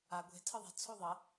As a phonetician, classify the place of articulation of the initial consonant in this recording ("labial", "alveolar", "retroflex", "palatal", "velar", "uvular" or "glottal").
velar